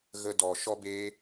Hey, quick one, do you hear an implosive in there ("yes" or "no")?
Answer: no